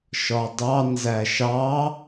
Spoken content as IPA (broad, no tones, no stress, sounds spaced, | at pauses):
ʃ ɒ dˤ ɑ n z æ ʃ ɑ